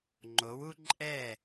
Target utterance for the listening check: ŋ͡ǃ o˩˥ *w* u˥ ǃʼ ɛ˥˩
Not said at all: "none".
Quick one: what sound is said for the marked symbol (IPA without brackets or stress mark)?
w